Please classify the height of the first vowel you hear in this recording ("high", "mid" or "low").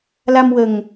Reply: low